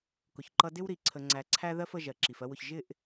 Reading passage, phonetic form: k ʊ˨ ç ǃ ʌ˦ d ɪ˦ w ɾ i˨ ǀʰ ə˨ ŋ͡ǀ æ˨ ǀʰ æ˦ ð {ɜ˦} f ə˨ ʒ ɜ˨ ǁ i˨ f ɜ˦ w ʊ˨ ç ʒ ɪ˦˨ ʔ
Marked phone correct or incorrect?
correct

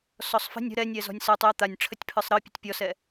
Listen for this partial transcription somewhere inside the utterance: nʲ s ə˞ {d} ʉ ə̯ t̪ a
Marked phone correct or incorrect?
incorrect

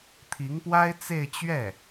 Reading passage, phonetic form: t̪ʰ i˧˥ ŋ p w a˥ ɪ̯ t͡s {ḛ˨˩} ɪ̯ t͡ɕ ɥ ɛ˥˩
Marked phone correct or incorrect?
incorrect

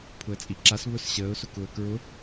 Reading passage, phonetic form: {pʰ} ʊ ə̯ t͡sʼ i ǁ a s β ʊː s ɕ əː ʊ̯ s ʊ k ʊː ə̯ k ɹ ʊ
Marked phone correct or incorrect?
correct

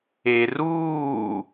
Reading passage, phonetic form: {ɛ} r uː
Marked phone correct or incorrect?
incorrect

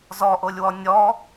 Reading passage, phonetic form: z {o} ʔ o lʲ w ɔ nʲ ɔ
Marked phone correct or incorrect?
incorrect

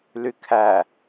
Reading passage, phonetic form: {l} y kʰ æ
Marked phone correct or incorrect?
correct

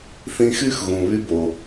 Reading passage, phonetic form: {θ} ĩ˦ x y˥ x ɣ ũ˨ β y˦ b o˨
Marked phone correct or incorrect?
correct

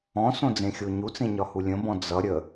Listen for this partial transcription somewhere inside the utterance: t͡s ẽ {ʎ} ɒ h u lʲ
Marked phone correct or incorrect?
incorrect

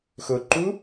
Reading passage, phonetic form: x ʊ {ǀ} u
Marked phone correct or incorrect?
incorrect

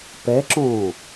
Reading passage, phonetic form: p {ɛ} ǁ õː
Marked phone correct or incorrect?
correct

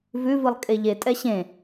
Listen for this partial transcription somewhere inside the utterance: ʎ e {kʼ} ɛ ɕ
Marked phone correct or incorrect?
incorrect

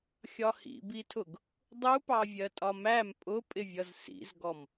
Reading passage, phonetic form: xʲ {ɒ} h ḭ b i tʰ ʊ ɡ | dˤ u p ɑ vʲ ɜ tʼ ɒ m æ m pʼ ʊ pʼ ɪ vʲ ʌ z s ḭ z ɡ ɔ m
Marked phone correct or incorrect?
correct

